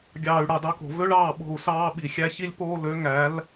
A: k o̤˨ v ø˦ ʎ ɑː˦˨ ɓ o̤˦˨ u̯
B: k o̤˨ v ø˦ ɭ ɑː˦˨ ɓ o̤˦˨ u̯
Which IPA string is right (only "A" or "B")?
B